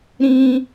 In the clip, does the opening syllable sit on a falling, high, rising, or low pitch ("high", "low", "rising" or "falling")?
high